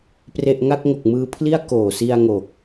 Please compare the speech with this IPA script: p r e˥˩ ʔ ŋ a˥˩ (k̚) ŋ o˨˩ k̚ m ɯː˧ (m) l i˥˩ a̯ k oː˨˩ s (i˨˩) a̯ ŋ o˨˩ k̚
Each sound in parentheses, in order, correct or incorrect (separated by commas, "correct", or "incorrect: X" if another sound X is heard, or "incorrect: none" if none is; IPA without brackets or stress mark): correct, incorrect: pʰ, incorrect: i˧